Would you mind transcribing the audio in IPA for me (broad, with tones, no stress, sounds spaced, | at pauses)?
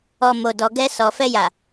ɔ˨ m o˨ d ɔ˨ ɡ ɛ˧ s ɔ˨ f ɛ˧ j a˨